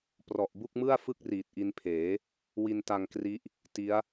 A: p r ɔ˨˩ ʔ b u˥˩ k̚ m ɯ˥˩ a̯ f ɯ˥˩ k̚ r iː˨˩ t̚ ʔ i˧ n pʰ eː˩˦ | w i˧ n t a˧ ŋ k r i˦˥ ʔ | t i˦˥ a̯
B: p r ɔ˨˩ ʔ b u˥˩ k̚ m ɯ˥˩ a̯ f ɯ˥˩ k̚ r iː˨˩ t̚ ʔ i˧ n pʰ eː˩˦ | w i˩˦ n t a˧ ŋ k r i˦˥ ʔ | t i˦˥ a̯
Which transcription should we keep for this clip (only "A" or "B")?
A